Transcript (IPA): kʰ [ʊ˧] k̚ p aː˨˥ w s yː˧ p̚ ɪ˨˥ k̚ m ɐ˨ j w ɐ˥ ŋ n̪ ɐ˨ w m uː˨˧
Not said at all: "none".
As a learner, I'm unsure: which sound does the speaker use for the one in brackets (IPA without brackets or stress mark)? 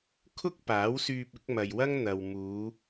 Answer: ʊ˥